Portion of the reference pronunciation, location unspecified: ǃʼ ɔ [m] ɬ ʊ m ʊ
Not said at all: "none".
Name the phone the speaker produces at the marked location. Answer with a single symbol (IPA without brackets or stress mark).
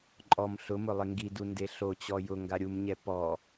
m